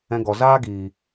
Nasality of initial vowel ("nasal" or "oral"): nasal